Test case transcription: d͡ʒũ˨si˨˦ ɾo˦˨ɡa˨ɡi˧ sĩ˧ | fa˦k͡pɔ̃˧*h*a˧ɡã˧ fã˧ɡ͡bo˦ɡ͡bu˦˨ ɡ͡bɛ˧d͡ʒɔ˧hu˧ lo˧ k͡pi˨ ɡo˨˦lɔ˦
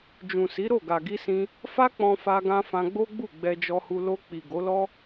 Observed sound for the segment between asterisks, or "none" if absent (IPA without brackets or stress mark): f